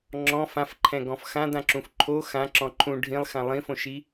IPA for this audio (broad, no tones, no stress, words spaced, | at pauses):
ŋ͡ǁɔ̃ fãfǃʰɛ̃ɡɔ̃f xãdãǁũf ǃʰo xãǁɔ̃ ǃʰũ ɖʱĩlˠxã lˠĩfõʃi